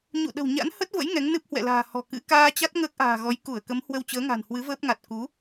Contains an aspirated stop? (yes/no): no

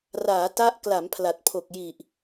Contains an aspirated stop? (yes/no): yes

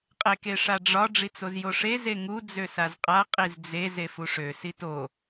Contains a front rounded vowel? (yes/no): yes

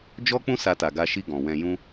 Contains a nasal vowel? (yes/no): yes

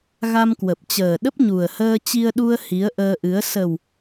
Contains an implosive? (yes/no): yes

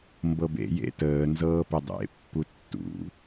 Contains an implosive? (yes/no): no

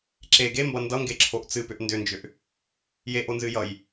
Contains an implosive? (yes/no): no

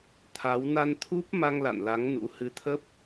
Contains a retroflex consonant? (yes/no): no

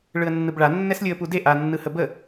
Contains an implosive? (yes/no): no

